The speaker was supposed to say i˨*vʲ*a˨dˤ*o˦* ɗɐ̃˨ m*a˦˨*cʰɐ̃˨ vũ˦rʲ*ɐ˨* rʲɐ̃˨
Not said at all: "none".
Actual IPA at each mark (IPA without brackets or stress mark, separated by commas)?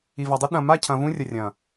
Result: v, o˦, a˦˨, ɐ˨